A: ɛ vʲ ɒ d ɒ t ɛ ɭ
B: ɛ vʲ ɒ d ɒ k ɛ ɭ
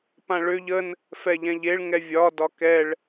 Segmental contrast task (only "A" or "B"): B